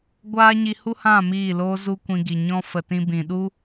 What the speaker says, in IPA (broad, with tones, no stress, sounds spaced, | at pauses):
ɡʷ aː˦ ɲ i˧ h u˦ h ã˦˨ m iː˦˨ l oː˦ z u˦ kʷ ĩ˧ ɡ i˨ ɲ ɔ̃˦ f ə˨ t ĩ˧ b ĩ˨ ɗ u˦